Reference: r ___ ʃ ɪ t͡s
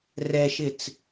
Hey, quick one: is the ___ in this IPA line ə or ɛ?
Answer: ɛ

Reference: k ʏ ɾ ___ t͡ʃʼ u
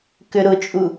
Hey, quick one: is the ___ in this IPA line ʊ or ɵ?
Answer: ʊ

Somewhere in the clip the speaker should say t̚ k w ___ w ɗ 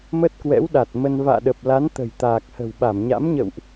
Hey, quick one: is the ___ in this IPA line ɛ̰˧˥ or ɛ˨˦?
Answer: ɛ̰˧˥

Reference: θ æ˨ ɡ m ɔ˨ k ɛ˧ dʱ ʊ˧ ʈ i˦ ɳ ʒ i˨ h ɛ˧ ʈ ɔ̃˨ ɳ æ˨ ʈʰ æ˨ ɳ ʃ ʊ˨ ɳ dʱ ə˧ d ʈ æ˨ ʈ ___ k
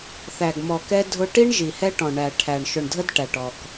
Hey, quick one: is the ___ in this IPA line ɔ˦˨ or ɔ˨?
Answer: ɔ˨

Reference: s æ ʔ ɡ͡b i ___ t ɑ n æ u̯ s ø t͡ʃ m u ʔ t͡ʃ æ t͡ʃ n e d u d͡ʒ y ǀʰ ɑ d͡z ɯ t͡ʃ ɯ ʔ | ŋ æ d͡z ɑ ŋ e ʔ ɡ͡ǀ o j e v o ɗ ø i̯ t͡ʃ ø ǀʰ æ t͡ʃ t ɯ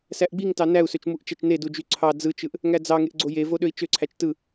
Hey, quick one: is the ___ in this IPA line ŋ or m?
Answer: ŋ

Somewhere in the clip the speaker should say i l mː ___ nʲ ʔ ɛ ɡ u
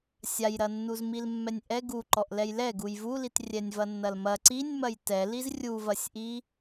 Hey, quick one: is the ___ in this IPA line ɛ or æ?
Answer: ɛ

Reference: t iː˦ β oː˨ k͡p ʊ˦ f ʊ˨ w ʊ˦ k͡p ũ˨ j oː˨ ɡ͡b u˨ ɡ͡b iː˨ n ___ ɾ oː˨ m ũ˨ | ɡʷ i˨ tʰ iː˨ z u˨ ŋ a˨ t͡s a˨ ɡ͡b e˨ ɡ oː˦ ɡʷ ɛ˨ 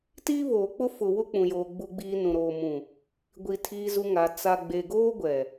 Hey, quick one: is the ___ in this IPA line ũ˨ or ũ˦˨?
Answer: ũ˨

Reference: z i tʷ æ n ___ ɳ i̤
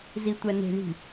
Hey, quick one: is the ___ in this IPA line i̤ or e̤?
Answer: e̤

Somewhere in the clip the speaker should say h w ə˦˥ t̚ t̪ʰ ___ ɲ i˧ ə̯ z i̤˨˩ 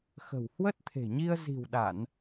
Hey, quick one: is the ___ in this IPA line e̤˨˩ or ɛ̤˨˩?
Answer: e̤˨˩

